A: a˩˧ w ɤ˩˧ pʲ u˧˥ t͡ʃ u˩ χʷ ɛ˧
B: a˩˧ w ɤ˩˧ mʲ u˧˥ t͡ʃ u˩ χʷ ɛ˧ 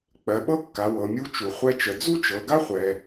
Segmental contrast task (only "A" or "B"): B